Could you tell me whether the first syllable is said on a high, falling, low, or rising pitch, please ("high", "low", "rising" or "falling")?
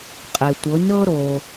low